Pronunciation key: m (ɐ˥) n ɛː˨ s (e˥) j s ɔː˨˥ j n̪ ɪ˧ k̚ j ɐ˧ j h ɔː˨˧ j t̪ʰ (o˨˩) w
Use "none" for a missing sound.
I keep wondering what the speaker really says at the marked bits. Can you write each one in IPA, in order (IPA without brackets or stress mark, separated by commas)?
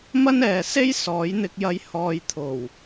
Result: ɐ˥, e˥, o˨˩